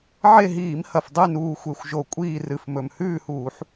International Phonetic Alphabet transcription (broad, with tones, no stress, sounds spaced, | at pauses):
ʕ e˦˨ ɦ iː˧˩˧ m h ɐ˨˩ f dˤ ʉ˦˨ n uː˨˩ xʷ e˨˩ xʷ ʒ o˨˩ kʷʼ iː˦˨ r ɨ˨˩ f m ɵ˨˩ m h ʉː˦˨ h uː˧˩˧ ħ